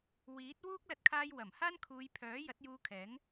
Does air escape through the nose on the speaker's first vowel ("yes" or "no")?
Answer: no